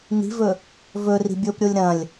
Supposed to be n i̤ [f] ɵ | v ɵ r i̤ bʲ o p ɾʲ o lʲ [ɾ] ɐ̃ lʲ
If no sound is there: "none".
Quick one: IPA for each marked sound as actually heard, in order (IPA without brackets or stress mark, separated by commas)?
v, ɾ